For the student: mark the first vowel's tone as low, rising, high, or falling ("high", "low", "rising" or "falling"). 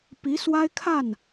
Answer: rising